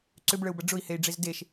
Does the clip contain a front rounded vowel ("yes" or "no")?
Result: yes